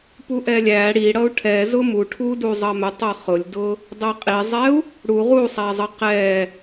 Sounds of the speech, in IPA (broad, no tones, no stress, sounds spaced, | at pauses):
p u ʔ ɛ lʲ æ ɽ i ɽ ʌ u̯ ʈʰ ɛ z ʊ m u ʈʰ u d u zˤ ʌ m ɛ tˤ ʌ χ ʊ lʲ d ʊ | dˤ ɛ qʼ i zˤ ɛ u̯ | ɽ u ʁ u sˤ æ zˤ ʌ q ɛ